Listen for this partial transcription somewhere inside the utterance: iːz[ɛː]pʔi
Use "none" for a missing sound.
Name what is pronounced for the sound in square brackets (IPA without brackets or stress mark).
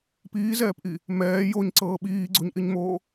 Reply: ɛː